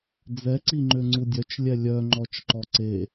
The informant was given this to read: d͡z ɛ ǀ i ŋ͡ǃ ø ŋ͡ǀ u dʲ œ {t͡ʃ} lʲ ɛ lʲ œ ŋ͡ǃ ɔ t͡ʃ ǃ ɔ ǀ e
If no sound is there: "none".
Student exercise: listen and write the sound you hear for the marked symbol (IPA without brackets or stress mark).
t͡ʃ